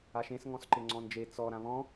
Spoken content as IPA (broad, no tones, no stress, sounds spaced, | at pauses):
a ʃ ẽ s ŋ ɔ̃ s ǃ ɪ ŋ͡ǀ ɔ̃ n d͡ʒ e t͡s ɔ ɾ ã β ɔ̃